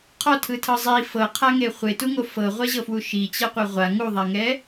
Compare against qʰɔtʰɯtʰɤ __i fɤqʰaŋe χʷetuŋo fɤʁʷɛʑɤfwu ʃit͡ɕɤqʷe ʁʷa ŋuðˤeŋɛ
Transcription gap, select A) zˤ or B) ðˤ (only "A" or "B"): A